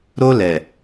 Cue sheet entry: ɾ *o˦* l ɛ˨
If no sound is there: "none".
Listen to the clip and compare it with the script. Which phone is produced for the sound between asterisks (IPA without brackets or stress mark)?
o˦